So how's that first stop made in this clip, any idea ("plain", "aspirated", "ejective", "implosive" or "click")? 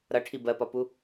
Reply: aspirated